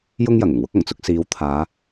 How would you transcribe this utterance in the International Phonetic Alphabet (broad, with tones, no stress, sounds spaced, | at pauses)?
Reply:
j ʊ˥ ŋ j ɐ˨˩ ŋ ʊ˨˩ ŋ w ʊ˥ k̚ ɐ˨˩ ŋ t͡s ʊ˧ k̚ s iː˨˧ w t̪ʰ aː˨˧